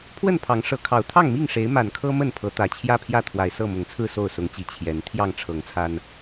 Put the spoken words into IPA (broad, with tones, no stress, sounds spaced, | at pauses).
pʰ w ə˥˨ n pʰ ɑ˨˦ ŋ ʂ ɤ˨˦ kʰ ɑ˨˩ ʊ̯ t̪ʰ ɑ˥˨ ŋ m i˥˨ ŋ ʂ e˨˦ ɪ̯ m a˨˩ n kʰ ɤ˦ m ə˥˨ n pʰ ɤ˨˦ t̪ ä˨˩ t͡ɕʰ j ä˥˨ pʰ j ä˥˨ t̪ʰ w a˨˩ ɪ̯ s ɤ˥˨ m ʊ˨˩ ŋ t͡sʰ ɹ̩˥˨ s o˥˨ ʊ̯ s ʊ˨˦ ŋ t͡ɕ i˨˩ t͡ɕʰ j ɛ˨˦ n t̪ʰ j ɑ˥˨ ŋ ʈ͡ʂʰ ɤ˨˦ ŋ t͡sʰ a˦ n